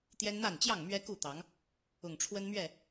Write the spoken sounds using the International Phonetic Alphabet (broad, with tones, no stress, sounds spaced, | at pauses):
t̪ j ɛ˦ n n̪ a˥˨ n t͡ɕ j ɑ˥˨ ŋ m ɥ ɛ˦ k u˥˨ t̪ ɑ˨˦ ŋ | ʊ˨˩ ŋ ʈ͡ʂʰ w ə˦ n m ɥ ɛ˥˨